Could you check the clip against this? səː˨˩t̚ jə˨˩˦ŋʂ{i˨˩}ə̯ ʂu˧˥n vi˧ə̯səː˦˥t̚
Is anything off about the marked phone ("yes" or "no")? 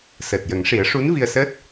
yes